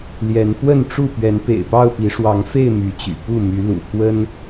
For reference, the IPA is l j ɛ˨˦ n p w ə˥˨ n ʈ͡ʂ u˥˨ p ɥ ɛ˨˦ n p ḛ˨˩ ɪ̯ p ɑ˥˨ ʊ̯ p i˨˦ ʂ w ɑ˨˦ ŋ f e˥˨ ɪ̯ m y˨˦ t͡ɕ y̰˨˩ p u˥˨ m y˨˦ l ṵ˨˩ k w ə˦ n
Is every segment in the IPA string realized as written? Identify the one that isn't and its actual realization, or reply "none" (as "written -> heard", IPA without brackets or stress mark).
none